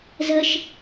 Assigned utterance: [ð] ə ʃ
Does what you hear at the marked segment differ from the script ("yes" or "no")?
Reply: yes